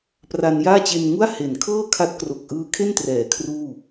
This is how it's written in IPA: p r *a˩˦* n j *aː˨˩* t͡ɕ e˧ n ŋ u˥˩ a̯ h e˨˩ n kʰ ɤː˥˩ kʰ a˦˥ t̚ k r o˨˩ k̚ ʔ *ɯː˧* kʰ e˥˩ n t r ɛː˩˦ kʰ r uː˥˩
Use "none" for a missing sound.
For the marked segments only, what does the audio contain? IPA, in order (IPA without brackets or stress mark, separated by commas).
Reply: a˧, aː˥˩, ɯː˧